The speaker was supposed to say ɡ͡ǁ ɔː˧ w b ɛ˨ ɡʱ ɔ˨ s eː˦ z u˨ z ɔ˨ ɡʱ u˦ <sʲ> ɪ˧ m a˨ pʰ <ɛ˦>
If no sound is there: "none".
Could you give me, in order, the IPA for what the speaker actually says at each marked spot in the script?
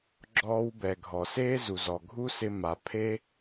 s, e˦

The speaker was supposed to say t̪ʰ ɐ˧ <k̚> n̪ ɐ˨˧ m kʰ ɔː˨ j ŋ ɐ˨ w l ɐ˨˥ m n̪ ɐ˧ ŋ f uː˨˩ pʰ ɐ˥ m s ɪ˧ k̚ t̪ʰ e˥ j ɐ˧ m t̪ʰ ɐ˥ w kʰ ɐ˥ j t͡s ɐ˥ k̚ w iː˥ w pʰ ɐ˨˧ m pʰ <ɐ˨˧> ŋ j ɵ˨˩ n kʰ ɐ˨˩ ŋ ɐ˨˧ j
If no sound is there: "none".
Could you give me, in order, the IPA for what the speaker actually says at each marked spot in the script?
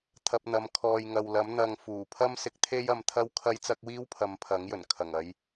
p̚, ɐ˨˥

